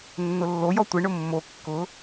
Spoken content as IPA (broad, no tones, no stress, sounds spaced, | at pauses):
nː ʊ lː o j ɔ tʷ ɪ ɳ ʊ mː o kː ʊ